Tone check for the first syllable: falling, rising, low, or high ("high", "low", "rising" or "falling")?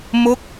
falling